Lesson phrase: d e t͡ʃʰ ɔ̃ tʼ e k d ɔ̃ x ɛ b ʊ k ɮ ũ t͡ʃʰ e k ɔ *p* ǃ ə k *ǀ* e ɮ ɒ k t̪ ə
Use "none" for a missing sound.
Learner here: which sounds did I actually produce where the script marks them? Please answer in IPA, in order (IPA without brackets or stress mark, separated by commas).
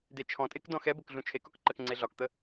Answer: k, ŋ͡ǀ